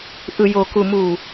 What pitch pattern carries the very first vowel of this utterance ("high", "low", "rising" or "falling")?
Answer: low